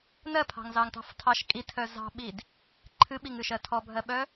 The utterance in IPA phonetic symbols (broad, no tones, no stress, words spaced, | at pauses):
nɜpʰɑ̤ŋzɑŋtɑ̤f tʰɑʃ kʼitʰœ zɑ̤ɓid | ǃʰɨɓiŋɨʃɜ tʰɔbʱɜɓœ